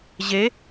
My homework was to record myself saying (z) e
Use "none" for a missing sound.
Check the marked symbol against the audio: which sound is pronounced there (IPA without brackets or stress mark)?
ʑ